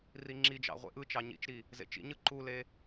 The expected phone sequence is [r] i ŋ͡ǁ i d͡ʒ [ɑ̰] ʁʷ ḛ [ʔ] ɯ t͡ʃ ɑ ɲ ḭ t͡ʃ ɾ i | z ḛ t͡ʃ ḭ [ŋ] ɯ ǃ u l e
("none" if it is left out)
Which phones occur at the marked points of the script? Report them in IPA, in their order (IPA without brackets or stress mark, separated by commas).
r, ɑ̰, ʔ, ɲ